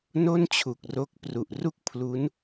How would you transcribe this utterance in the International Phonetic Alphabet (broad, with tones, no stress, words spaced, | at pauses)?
no˥˩nt͡ɕʰu˨˩k̚ro˦˥k̚pru˨˩ʔ ru˥˩k̚pʰlu˦˥n